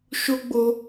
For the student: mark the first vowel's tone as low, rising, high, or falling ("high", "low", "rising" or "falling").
high